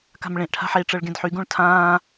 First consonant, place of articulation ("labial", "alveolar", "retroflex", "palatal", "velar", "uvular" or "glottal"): velar